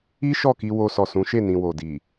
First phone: i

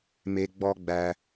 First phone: m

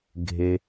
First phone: ɡʱ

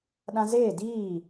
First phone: ɗ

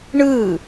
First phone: ɳ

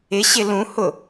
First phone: ɪ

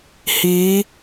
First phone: h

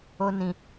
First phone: o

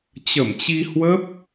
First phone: t͡ɕ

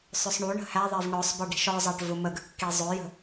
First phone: sˤ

